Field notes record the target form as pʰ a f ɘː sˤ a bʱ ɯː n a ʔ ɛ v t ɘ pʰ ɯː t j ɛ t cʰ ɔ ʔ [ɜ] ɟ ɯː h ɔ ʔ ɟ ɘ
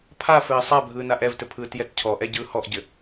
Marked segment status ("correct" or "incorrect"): incorrect